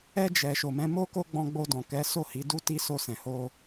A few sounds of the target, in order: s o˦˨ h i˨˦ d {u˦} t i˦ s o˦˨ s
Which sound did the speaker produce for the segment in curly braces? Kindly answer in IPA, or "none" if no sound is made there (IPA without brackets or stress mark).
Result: u˦